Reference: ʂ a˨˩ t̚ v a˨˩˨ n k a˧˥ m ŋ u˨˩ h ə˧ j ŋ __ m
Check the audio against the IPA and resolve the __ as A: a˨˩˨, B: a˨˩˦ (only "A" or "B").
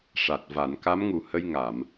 A